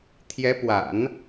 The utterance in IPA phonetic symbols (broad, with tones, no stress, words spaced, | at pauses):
t̪ʰjɛ˧˥ pwa̰˨˩˦n